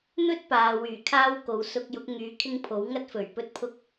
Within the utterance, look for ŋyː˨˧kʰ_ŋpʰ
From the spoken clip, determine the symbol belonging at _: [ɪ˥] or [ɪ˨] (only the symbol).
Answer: ɪ˥